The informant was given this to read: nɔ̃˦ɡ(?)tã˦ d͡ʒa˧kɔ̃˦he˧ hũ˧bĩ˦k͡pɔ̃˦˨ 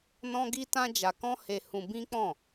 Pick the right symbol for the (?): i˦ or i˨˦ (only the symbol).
i˦